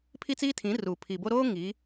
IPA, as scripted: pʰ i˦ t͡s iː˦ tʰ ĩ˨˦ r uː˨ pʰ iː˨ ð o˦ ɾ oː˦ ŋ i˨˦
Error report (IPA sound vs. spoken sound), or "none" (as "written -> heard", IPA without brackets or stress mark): ð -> b